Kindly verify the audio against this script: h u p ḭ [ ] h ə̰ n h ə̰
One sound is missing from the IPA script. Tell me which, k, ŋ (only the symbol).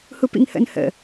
ŋ